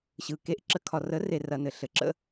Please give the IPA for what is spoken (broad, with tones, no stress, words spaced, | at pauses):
ɕɯ˨ke˧ʔ ǁə˦kʰɒ˧ rə˨˦ re˦rɐ˧nɘ˨ ɬɘ˨ǁə̰˦